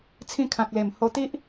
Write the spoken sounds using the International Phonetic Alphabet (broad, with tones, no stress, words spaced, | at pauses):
t͡sʰĩ˧kʰã˨k̚le˨˩m ho˧t̪i˦ʔ